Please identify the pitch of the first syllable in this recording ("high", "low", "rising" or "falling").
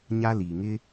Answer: high